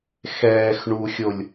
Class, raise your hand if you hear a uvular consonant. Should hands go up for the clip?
no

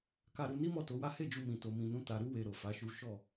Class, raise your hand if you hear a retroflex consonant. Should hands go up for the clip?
no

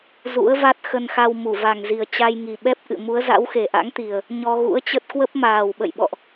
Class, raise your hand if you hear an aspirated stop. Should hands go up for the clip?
no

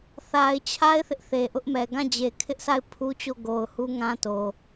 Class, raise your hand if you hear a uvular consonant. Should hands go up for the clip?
no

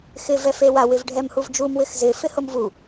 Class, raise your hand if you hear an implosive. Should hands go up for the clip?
no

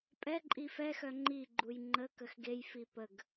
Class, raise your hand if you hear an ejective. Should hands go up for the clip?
yes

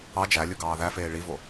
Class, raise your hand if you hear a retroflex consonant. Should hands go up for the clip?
yes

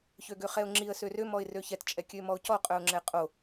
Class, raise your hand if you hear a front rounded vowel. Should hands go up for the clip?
yes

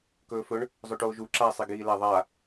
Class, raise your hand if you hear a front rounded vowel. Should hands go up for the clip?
no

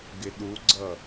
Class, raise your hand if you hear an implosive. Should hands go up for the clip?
yes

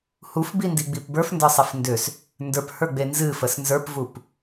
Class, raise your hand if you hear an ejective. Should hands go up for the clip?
no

